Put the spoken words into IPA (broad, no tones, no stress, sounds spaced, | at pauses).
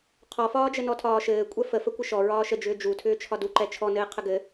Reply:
qʰ ɔ f ɒː d͡ʒ ə n ɔ tʰ ɒː ʃ ɘː kʷʼ ɛ f ə f ə kʷ ɪ ʃ ɔ ɹ ɒː ʃ ə d͡ʒ ʏː d͡ʒ u tʰ ʏː t͡ʃʰ ɒ d u ǃ ɛ t͡ʃʰ ɔ n ɘː qʰ ə ɡ ɘ